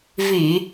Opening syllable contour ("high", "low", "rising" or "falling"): low